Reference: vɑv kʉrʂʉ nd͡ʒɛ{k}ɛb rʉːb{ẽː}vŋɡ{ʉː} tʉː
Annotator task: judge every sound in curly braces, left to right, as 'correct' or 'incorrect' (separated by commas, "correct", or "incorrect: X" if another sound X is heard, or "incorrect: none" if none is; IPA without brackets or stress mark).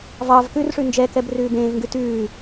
correct, correct, incorrect: ʉ